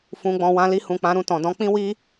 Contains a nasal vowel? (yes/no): yes